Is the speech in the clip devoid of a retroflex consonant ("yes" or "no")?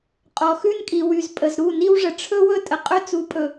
no